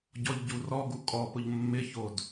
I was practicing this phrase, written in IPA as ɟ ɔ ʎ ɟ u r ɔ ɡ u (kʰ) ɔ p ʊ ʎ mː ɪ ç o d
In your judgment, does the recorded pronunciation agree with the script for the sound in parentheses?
no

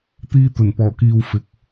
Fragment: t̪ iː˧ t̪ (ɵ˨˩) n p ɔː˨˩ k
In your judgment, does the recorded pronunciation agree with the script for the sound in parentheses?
yes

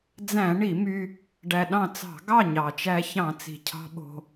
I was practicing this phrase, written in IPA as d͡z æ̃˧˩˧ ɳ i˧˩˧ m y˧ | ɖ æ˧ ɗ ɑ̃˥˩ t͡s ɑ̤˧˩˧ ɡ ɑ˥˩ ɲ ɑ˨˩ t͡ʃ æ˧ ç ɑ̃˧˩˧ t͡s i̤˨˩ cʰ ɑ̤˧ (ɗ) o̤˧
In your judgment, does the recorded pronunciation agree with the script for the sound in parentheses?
no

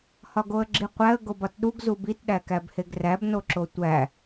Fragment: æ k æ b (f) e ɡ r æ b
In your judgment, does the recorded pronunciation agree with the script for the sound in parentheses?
no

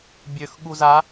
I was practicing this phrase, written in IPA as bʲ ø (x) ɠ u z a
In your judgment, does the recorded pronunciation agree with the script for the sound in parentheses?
yes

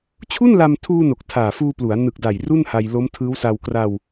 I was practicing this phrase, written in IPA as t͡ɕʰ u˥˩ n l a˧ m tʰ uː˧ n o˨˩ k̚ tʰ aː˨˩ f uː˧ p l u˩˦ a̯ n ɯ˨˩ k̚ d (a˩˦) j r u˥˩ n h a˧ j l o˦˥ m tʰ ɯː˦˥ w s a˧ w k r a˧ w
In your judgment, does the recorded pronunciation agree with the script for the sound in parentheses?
no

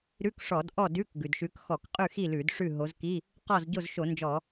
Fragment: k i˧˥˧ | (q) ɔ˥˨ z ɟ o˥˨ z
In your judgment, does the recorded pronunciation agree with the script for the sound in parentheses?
yes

